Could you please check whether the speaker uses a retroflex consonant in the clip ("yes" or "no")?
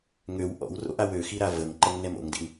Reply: no